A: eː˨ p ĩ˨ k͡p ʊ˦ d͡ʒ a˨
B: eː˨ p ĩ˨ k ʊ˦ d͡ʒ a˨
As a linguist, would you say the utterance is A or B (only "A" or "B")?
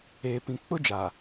A